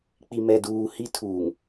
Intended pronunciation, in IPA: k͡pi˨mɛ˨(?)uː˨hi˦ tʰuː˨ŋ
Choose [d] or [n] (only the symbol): d